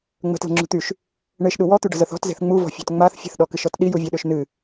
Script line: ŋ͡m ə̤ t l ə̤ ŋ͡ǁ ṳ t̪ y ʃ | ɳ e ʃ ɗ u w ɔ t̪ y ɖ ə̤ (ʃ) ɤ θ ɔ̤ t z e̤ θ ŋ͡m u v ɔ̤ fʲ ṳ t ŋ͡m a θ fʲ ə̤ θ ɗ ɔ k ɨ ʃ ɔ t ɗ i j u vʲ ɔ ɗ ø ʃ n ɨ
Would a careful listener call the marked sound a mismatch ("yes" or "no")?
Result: yes